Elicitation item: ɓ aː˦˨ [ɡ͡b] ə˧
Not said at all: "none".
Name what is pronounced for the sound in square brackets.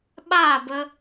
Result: b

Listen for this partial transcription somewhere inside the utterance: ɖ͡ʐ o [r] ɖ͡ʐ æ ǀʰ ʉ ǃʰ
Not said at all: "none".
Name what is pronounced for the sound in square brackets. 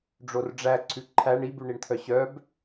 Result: r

